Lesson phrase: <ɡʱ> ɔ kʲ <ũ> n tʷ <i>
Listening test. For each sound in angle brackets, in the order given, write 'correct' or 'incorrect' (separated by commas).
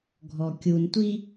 correct, incorrect, correct